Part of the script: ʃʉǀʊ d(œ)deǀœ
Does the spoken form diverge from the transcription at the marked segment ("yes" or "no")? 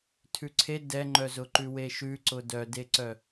no